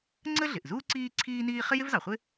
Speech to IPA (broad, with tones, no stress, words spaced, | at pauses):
ŋ͡ǀə˥ɮɪ˩ʔzuː˥ ǀiː˥ǀʰiː˥niː˥ χɪ˥jɪ˥vzɑ˩χʷɪ˥